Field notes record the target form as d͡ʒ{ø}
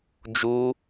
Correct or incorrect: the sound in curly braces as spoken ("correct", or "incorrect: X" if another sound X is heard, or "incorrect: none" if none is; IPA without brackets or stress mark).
incorrect: u